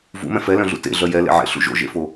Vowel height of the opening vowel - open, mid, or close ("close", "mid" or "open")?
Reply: close